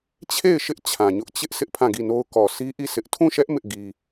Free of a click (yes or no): yes